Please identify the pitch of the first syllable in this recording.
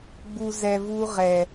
low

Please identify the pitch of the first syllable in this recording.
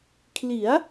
rising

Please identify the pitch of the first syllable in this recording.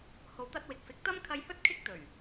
low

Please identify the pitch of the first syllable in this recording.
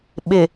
low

